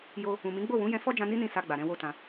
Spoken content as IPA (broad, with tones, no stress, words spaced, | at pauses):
jo˧ | ũ˨mĩ˨˦ ɡ͡bo˦˨wũ˨˦ jɛ̃˧fɔ˦d͡ʒã˧ ni˦nĩ˧ sa˧ɡ͡ba˨ɾɛ̃˧ wo˦tã˧